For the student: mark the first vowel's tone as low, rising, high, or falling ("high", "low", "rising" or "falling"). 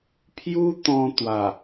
high